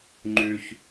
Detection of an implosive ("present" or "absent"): absent